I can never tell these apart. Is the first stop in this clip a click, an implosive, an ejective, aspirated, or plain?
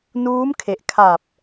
aspirated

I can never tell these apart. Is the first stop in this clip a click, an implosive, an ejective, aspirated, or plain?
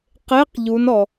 plain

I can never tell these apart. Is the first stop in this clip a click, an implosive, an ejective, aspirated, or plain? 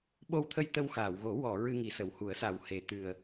implosive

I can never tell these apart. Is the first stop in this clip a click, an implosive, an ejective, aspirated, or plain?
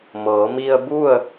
plain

